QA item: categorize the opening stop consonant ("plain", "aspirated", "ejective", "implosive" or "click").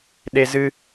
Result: implosive